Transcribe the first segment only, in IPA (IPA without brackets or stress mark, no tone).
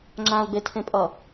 ŋ͡ǁ